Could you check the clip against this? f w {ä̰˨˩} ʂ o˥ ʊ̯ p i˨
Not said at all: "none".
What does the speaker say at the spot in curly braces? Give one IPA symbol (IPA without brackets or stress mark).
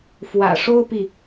ä̰˨˩